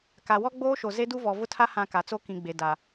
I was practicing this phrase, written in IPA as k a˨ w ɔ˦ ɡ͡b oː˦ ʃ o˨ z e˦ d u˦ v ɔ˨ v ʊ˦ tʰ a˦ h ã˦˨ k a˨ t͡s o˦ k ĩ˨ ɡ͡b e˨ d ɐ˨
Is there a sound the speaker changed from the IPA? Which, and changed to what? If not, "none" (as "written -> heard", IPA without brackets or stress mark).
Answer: ɐ˨ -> a˨